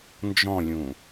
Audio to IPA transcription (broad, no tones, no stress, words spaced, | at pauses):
nd͡ʒɔ̃lʲũ